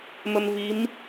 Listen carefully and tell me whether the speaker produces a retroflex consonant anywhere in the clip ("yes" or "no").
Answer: no